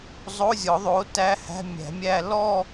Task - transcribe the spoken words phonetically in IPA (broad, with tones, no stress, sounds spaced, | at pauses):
zˤ o˧˥˧ zʲ ɔ˨˩˦ ðˤ o˩˥ t æ˧˥˧ h æ̤˧˥˧ mʲ æ̤˨˩˦ mʲ æ˥˧ l ɔ˥˧